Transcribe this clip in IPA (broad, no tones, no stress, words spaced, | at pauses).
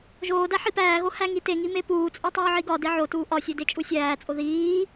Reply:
ʒoːdæ ħipæːɣo hæŋiteŋi mepuːt͡sʼu tˤuːʕiɡɒde ʕotuː ʔɒsʲe det͡ʃʼusʲæːt͡sʼo ðiː